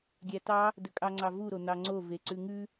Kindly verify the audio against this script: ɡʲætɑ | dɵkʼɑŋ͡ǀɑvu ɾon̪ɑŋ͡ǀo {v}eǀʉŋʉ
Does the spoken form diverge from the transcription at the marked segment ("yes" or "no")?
no